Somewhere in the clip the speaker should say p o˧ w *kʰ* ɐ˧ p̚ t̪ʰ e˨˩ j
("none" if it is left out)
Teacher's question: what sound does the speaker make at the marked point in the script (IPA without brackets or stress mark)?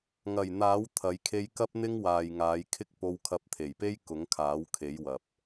kʰ